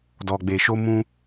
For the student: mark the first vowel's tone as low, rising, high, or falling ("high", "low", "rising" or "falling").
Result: low